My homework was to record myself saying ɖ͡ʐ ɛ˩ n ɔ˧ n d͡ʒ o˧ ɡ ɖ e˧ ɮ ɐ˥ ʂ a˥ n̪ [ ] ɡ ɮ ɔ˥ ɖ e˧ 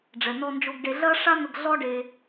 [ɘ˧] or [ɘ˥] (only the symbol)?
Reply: ɘ˧